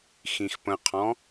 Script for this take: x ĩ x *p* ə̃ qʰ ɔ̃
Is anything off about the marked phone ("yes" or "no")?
no